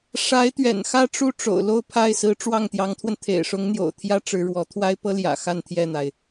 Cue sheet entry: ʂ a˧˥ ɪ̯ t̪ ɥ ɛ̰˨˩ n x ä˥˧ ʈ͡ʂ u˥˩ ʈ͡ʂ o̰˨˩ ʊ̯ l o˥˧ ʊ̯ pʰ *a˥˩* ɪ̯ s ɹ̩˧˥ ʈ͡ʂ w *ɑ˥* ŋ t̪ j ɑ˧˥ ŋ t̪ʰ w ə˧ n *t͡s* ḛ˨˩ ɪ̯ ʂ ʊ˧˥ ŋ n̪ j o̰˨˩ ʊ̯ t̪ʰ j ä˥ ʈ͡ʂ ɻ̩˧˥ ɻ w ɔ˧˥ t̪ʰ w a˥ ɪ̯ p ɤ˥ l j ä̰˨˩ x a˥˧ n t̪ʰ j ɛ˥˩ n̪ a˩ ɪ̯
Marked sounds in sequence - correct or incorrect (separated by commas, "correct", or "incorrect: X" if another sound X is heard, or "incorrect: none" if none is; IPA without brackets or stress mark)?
correct, incorrect: ɑ˥˩, incorrect: t̪ʰ